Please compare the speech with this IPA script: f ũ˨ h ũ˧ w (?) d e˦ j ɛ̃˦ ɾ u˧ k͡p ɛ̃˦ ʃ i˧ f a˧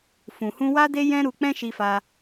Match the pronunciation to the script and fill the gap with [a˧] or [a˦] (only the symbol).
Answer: a˦